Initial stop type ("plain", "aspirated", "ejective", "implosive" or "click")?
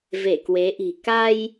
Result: plain